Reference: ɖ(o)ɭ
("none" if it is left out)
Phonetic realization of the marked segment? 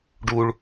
u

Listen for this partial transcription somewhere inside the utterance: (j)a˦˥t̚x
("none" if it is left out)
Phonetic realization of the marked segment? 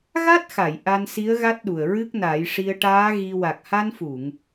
ɣ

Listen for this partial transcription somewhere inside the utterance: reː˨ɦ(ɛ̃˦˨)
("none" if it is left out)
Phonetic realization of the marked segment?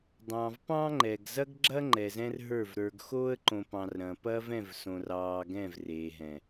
ɛ̃˨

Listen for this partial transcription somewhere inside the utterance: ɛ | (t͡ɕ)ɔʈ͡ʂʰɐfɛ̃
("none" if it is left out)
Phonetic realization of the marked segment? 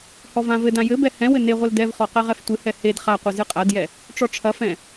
ʈ͡ʂ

